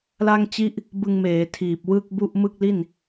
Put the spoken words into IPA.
la˥˩ŋt͡ɕi˥˩ʔ | bɯ˧ŋmeː˩˦ tʰiː˨˩p̚ wɯ˥˩k̚bu˥˩ʔ mɯ˥˩k̚li˥˩n

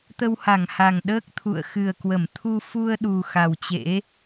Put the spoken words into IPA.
t̪ə˧wha˧˩ŋha˨˩ŋ ɗəː˦˥k̚t̪ʰṵ˧˨ə̯xɨ˨˩ə̯kwə˧˩m t̪ʰu˧ fu˧ə̯ɗu˨˩ xa˨˩wt͡ɕḛ˧˥

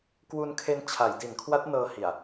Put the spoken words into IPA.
kwu˧nkʰe˧n t͡ɕʰa˩˦jdi˩˦nkʰwa˦˥t̚ nɤː˧hi˨˩a̯

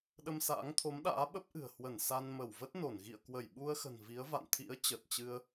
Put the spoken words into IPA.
ɗə˧msa̰ː˧˥ŋt̪ʰo˨˦mɗa̰ː˧˥ ɓə˦˥p̚ʔɨ̤˨˩ə̯ hwə˧˩n sa˧nmə˧˩w və˦˥t̚ no˧˩n ɣḭ˧˨ə̯kwə˧˩jɓu˧ə̯xə̤˨˩n vi˨˦ə̯va̰˧˨n t̪ʰḭ˧˥ə̯ t͡ɕə˨˩t̚t͡ɕɨ˧ə̯

